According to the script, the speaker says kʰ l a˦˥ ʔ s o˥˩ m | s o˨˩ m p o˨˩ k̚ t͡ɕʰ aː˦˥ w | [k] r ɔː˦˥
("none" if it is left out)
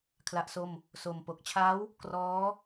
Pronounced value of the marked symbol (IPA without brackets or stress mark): k